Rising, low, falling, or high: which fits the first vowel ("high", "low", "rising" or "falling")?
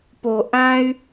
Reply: low